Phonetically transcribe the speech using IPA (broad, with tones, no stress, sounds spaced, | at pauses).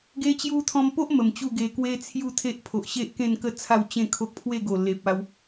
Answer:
ɡ e˧ t͡ɕ j u˧ t̪ʰ ɔ̃˧ m p o˦ ʔ m ə˨˩ m t͡ɕ u˥˧ ɡ e˧ k w e˦ t͡sʰ j u˥˧ t̪ʰ e˦ ʔ pʰ o˨ ʔ ɕ e˦ ʔ k ẽ˥˧ n k ə˦ t͡sʰ a˥˧ w t͡ɕ ẽ˥˧ kʰ o˦ k̚ pʰ w e˥˧ ɡ o˨˩ l e˨ p̚ a˧ w